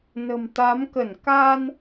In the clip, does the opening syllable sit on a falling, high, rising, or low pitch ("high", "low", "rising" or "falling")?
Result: low